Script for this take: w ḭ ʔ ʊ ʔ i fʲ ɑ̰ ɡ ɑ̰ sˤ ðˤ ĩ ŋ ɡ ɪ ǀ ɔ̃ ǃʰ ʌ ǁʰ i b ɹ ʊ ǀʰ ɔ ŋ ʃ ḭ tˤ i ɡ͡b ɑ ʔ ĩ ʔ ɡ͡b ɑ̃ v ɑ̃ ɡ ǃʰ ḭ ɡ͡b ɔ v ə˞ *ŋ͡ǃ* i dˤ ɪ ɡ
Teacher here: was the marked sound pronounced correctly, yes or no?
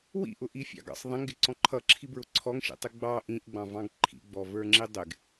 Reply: no